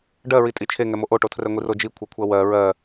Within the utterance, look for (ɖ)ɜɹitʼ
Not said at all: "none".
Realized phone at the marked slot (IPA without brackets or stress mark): ɖ